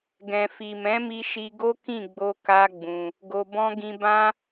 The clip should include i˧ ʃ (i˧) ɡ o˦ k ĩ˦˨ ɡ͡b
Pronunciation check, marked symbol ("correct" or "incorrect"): correct